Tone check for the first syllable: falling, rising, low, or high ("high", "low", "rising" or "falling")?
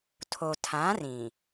low